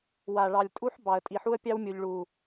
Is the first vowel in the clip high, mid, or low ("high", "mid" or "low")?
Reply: low